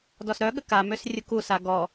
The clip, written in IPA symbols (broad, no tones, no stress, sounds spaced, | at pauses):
d ɔ s ɾ œ ɠ ə k a m ø s rʲ u k u s a ɡ ɔ